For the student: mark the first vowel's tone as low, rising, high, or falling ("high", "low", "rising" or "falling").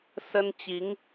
high